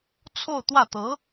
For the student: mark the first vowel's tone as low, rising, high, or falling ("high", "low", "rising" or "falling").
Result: falling